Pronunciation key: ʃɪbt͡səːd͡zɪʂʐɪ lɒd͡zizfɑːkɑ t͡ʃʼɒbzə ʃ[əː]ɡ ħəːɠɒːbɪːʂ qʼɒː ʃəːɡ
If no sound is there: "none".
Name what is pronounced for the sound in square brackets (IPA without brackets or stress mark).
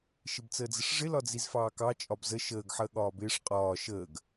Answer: əː